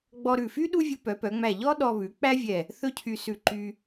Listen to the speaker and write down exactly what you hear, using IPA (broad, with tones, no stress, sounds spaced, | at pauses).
ɡ͡b ɔ˧ ɾ ʉ˧˩ f y˥ ɗ u˥ vʲ u˧ p œ˩˧ p œ˩˧ ŋ͡m æ˧˩ ʎ ɔ˥ ɗ ɔ˧ β ʉ˩˧ k͡p æ˥ vʲ ɛ˧˩ | θ ɵ˥˧ cʰ y˧ s ʉ˧˩ ǃ y˧